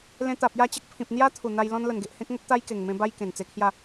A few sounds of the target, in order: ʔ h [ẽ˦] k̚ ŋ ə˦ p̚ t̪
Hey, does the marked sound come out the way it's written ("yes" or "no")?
yes